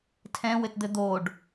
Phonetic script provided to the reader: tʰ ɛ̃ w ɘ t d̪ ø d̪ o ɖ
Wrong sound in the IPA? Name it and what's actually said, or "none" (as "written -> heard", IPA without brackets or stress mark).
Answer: ø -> ɘ